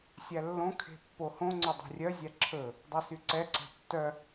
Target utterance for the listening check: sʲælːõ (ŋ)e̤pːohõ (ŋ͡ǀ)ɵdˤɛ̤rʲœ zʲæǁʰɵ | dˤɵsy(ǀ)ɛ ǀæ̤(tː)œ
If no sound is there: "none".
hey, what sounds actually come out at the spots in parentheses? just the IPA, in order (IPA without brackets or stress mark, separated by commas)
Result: kʰ, ŋ͡ǀ, ǀ, tː